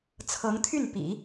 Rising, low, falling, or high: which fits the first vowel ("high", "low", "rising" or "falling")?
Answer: rising